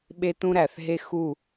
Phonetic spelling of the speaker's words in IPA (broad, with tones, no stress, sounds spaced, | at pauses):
ɓ e˦ t ũ˦ ɾ æ˨ θ ɦ e˦ x u˦˨